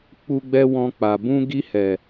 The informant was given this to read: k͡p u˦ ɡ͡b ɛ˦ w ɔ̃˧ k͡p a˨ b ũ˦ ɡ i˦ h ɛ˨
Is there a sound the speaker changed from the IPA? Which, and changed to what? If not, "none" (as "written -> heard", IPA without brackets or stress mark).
none